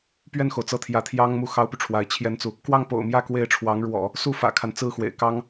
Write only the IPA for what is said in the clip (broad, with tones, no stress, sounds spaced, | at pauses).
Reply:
p ɥ ɛ˥˩ n x o˩ ʊ̯ t͡s ɤ˥˩ t̪ʰ j ä˧˥ t̪ʰ j ɑ˥ ŋ m u˥˩ x ɑ˥ ʊ̯ p y˨ ʈ͡ʂʰ w a˧˥ ɪ̯ t͡ɕʰ j ɛ˥ n t͡s u˨ | k w ɑ˥˩ ŋ p o̰˨˩ ʊ̯ m j ä˥˧ k w e˥˩ ɪ̯ ʈ͡ʂʰ w ɑ˧˥ ŋ ɻ w ɔ̰˨˩˦ | s u˥˩ f ä̰˨˩ kʰ a˦ n t͡s ɹ̩˥˩ x w ḛ˨˩ ɪ̯ k ɑ˥ ŋ